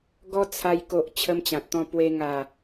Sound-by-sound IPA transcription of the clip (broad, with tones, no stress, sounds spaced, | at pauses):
ɡ ɔ˦ t͡sʰ a˧ j k o˨ ʔ t͡ɕʰ ə˦ m t͡ɕ ã˨ t̚ t̪ ɔ̃˥˧ p w e˧ ŋ a˨˩